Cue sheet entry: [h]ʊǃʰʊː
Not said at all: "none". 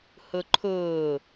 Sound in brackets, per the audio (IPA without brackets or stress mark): h